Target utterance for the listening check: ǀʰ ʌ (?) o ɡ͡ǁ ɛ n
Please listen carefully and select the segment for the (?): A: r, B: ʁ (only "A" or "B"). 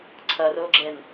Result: A